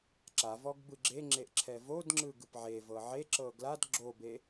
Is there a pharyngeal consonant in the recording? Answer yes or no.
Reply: yes